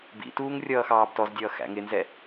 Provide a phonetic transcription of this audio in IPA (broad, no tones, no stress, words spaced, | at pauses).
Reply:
bḭtuːŋ rʲʌːxɑːbtɔzdʲʌː xæ̰ŋɪnzɛ